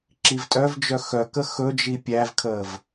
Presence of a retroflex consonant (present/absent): absent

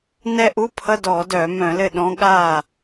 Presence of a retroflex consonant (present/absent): absent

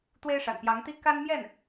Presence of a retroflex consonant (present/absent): present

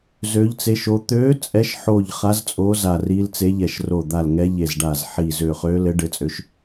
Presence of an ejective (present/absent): present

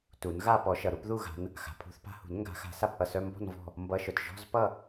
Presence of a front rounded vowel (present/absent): present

